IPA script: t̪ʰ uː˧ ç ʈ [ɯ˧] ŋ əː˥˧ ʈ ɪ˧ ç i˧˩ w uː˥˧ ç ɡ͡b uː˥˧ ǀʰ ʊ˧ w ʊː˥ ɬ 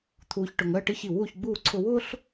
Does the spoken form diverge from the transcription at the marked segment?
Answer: yes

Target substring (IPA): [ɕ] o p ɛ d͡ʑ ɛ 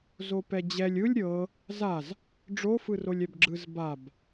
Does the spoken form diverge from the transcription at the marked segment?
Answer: yes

